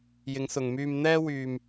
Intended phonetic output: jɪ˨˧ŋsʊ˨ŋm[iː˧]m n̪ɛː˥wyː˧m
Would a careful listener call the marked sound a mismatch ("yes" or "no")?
yes